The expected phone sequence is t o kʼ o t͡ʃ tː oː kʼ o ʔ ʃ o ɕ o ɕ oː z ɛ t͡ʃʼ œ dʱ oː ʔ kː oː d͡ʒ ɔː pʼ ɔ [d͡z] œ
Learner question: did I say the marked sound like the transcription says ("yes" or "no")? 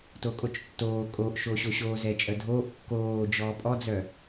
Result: yes